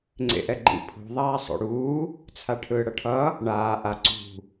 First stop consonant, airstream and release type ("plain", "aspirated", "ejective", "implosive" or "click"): click